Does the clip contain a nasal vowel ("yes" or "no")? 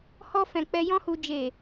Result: yes